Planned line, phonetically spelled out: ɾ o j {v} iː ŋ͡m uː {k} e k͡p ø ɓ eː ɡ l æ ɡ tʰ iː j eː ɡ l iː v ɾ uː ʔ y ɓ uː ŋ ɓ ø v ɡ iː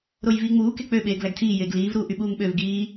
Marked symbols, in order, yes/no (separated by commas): yes, yes